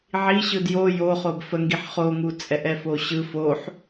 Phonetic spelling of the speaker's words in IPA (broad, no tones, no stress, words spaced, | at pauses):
ʕi ɕɯdjo joχob fəŋɡiħ χoŋu t͡sʼɛʔɛfoɕɯ foħ